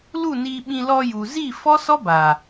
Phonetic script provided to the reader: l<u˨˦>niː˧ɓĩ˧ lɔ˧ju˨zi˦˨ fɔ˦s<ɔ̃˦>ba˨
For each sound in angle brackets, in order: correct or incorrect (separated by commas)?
incorrect, incorrect